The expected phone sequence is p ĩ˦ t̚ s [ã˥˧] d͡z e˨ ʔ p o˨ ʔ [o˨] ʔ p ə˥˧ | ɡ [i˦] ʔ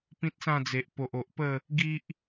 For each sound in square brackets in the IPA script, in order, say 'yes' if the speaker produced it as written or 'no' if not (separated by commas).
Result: yes, yes, yes